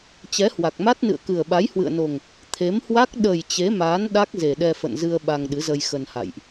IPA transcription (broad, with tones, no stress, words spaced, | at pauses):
t͡ɕɛ˨˦hwa˨˩k̚ma˦˥t̚nɨ̰˧˨ə̯ kɨ˨˩ə̯ɓa˨˦jhwɨ̰˧˨ə̯no˨˩ŋ | t̪ʰe˨˦mhwa˦˥k̚ ɗə˨˩j t͡ɕe˨˦maː˨˦n ɗa˦˥k̚ ze˨˩ɗɛ˧fə̰˧˨nzɨ˧ə̯ ɓa˧ŋɗɨ˨˦zə˧j xə˧nha̰˧˨jʔ